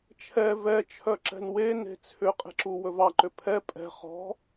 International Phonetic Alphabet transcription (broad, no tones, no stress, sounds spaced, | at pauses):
t͡ʃʰ ɛ v ɛ t͡ʃʰ œ ǁ ɛ̤ n w e n e̤ t͡sʰ ʏ qʼ e̤ ǁ u w ɵ v ɑ ǃ ʏ pʰ ɛ pʼ ɛ̤ χ ɔ̤